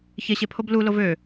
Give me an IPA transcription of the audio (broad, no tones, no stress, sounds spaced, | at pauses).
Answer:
ç e ɕ e pʰ o b l u l o v ø